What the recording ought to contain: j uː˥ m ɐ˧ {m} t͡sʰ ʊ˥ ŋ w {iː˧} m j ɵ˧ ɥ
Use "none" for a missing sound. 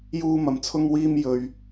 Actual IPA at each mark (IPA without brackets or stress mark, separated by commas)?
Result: m, iː˥